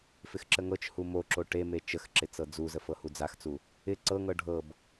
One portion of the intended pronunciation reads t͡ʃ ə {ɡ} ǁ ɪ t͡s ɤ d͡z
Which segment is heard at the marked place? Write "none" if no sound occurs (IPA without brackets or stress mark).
x